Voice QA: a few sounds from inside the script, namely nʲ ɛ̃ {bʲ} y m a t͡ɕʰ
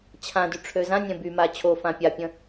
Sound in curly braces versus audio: incorrect: b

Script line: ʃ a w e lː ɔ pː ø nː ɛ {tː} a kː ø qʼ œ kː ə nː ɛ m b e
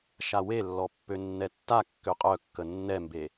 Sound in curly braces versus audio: correct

